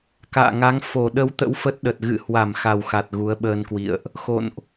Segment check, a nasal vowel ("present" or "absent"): absent